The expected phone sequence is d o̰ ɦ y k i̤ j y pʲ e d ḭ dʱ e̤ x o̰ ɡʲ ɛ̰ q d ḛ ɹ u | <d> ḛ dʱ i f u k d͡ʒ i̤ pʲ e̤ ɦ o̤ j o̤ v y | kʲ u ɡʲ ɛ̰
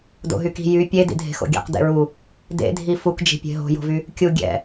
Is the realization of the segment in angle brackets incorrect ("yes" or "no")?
no